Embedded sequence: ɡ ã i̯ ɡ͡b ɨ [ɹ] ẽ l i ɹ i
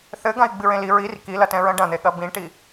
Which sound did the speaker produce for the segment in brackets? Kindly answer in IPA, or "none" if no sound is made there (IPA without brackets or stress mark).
ɹ